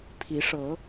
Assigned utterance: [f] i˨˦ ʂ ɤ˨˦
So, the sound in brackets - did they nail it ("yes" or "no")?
no